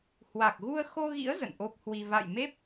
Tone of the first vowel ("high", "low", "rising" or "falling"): low